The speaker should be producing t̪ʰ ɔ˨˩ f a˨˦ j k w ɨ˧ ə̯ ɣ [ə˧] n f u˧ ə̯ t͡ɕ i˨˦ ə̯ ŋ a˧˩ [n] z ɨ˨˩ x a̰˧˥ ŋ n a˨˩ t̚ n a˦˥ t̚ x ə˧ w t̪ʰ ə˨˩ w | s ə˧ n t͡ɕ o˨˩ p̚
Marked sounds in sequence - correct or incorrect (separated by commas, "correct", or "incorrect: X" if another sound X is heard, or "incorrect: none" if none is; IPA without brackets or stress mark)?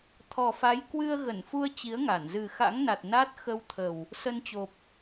incorrect: ə˧˩, correct